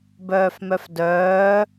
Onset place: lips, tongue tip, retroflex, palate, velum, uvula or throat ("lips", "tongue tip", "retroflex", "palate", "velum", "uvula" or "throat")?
lips